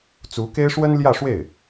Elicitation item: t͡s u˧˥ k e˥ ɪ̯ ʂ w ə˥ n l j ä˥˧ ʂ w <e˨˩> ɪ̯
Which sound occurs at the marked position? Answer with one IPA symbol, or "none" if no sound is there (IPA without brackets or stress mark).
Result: e˥˩